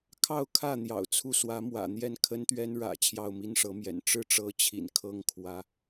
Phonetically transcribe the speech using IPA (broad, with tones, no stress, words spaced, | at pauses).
kʰɑ˥˧ʊ̯kʰä˥˩ n̪jɑ̰˨˩ʊ̯t͡sʰu˥˩ swä˧˥mwä̰˨˩n̪jɛ˥˩n kʰə˥nt̪ɥɛ˥nɻä̰˨˩ t͡ɕʰjɑ˥˩ʊ̯mi˥nʂɤ˧˥mjɛ̰˨˩n ʈ͡ʂɻ̩˥˩ʈ͡ʂɤ˧˥t͡ɕʰḭ˨˩n kʰɤ˥˩ŋ kʰwä˧˥